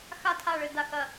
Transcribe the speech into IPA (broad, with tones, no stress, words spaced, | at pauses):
xa˥˨tʰa˥˨ɭɘ˥˨ da˥˨xɐ˥˨